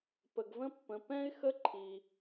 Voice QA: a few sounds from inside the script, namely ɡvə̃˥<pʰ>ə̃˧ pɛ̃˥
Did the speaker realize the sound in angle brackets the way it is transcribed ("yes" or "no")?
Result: no